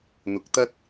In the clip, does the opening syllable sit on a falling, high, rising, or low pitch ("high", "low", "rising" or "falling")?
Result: rising